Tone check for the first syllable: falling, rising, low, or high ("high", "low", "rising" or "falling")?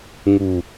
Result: low